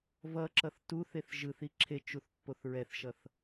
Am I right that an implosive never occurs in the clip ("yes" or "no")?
yes